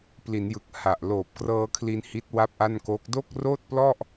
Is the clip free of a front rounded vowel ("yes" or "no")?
yes